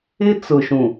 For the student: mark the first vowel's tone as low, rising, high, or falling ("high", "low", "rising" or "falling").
high